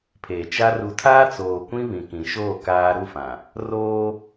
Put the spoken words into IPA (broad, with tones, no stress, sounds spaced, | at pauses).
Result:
pʰ eː˨ t͡ʃ a˦ r u˨ tʰ aː˦ t͡s oː˨ kʷ ĩ˦ β ĩ˨ k ĩ˨ ʃ oː˦˨ k aː˦ ɾ u˦˨ f ã˨ | r oː˦